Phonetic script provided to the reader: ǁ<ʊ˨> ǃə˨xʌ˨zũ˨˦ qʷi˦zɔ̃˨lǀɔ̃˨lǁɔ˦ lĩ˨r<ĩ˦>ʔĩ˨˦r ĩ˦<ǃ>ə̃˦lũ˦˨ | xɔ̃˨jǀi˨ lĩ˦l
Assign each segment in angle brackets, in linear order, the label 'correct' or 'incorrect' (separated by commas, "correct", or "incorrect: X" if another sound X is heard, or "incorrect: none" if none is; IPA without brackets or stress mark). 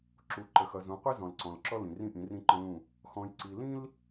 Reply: incorrect: u˨, correct, correct